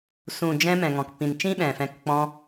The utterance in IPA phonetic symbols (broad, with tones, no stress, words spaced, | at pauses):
sũ˨d͡ʒɛ̃˧ mɛ̃˨ŋɔ̃˨kpĩ˨n t͡ʃĩ˦ɓɛ̃˨fɛ̃˧k k͡pɔ̃˧